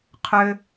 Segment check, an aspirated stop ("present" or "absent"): present